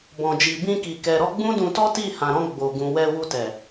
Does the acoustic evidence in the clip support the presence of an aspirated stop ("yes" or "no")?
no